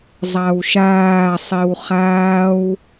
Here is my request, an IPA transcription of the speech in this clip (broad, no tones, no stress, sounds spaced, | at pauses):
zˤ a w ʃ aː sˤ i w χ aː w